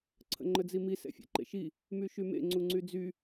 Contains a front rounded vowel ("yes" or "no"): yes